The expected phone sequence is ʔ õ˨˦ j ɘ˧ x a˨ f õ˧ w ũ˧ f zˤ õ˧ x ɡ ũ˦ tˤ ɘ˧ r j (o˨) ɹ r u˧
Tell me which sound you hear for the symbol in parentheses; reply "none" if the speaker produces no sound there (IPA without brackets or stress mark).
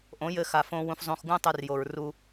o˨